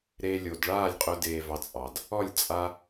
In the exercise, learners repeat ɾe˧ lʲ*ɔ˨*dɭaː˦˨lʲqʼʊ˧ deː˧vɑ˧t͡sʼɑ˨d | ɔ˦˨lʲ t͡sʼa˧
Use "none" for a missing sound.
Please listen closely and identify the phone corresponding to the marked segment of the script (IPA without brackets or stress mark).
o˨